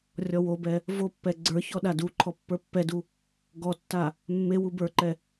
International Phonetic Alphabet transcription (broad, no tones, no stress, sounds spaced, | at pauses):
rʲ ɔ w o b ɛ | v o pː ɛ ɡ͡ǀ ə˞ ç ɔ ɗ a d u ǃʰ ɔ pː ə˞ pː ɛ d u | ɡ ɔ tː a | mː e w u b ə˞ ǃ ɛ